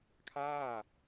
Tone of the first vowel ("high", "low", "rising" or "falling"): falling